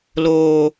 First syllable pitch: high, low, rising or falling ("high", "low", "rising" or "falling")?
low